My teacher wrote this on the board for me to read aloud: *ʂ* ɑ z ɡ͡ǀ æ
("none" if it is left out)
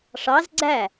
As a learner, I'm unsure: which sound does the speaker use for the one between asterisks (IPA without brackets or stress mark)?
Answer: ʂ